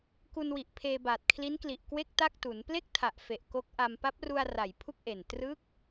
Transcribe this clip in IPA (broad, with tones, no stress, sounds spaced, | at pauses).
k u˧ n w i˨˩ ʔ pʰ eː˧ b aː˨˩ t̚ kʰ l i˦˥ n k l i˨˩ ʔ k w e˥˩ k̚ t a˥˩ k̚ t u˩˦ n p l e˥˩ k̚ tʰ a˨˩ ʔ f e˨˩ ʔ k o˦˥ k̚ ʔ a˧ m p a˦˥ p̚ r u˧ a̯ r a˨˩ j pʰ u˥˩ k̚ ʔ e˨˩ n t r ɯ˦˥ k̚